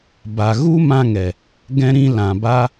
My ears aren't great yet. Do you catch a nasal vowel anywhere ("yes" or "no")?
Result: yes